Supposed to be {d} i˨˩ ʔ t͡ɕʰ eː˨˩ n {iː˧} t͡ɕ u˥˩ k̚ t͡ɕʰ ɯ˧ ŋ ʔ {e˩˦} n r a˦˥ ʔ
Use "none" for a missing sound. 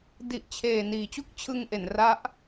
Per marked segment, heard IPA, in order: d, iː˨˩, e˩˦

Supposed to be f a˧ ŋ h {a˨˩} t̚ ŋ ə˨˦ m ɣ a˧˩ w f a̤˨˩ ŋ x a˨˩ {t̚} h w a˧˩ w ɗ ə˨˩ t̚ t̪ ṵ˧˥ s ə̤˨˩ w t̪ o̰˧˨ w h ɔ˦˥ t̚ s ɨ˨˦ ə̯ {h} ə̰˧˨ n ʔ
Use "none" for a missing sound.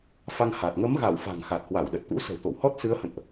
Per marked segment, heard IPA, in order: a˨˩, t̚, h

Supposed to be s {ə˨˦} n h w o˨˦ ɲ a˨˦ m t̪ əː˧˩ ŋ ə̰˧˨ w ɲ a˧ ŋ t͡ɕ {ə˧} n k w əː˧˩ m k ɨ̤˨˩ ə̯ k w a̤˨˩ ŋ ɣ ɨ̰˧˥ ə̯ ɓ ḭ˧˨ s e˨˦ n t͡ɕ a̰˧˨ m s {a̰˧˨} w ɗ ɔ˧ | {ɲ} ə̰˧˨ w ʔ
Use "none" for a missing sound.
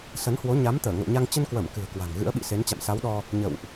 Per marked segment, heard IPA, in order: ə˨˦, ə˧, a˨˦, ɲ

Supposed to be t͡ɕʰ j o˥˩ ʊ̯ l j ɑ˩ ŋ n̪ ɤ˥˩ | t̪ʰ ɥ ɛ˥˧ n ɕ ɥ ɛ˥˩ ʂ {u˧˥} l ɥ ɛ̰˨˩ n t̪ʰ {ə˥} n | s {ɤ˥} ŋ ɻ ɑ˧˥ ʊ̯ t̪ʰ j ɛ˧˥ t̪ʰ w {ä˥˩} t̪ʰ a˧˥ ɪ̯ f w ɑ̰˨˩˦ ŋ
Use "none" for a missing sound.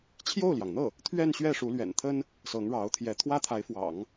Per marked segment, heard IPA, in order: u˧˥, ə˥, ɤ˧˥, ä˥

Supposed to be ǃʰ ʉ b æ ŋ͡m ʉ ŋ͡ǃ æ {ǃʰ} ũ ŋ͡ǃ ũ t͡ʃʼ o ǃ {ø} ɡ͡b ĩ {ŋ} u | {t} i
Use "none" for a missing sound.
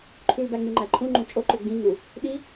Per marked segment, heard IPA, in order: ǃʰ, ø, ŋ, ɗ

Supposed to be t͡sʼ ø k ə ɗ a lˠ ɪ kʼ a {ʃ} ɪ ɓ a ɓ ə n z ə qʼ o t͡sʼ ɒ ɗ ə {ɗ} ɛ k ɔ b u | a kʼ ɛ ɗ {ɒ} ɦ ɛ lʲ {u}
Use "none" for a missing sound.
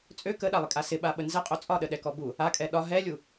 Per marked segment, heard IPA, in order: s, ɗ, ɒ, u

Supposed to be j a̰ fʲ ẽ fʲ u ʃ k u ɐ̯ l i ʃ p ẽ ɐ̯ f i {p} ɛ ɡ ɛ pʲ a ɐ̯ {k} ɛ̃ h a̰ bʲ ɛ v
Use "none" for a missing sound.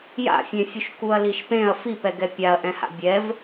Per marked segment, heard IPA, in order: p, ʔ

